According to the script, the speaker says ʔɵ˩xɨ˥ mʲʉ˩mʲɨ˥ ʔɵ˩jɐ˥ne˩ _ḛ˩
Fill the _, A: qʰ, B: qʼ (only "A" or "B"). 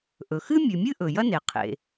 A